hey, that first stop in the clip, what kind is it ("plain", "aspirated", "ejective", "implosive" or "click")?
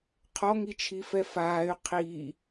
aspirated